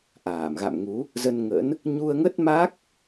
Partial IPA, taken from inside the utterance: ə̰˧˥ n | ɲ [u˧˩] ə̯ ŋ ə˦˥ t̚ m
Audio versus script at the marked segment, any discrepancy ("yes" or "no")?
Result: yes